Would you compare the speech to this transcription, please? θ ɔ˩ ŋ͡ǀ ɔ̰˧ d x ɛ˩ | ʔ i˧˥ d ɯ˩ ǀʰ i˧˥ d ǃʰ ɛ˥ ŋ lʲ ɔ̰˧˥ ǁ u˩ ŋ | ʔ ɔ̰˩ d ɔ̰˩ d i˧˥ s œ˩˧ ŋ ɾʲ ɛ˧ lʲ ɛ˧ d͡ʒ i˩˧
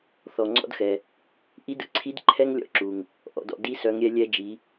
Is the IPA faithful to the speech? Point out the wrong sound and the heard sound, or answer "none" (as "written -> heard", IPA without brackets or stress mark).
none